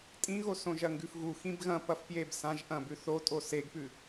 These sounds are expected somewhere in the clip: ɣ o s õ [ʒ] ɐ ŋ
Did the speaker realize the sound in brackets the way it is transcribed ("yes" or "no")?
yes